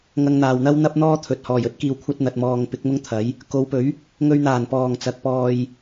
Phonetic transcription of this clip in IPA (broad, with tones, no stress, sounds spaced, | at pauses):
ŋ ɐ˧ ŋ n̪ aː˨ w n̪ ɐ˥ w n̪ ɐ˥ p̚ n̪ ɔː˥ t̪ʰ ɵ˨ t̚ h ɔː˨˩ j ɵ˥ t̚ k iː˨ w kʷʰ ɐ˧ t̚ n̪ ɐ˨ t̚ m ɔː˨ ŋ p ɪ˨˥ k̚ m ʊ˥ ŋ t̪ʰ ɐ˨˥ j | k o˨˧ w p ɵ˨˥ ɥ | ŋ ɵ˧ ɥ n̪ aː˨˩ n p ɔː˨˩ ŋ t͡s ɐ˨˥ k̚ p ɔː˧ j